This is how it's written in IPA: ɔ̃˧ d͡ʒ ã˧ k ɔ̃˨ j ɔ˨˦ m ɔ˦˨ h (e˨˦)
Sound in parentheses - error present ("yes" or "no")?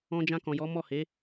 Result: no